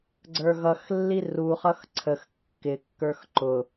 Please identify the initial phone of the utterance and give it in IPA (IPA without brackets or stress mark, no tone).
ɡ͡ǀ